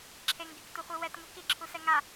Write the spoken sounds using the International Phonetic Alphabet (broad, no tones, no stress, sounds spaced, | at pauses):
ǁʰ e ŋ ɡ e k t u χʷ i w ɛ t ŋ u k i ǁʰ u s ɛ ŋ a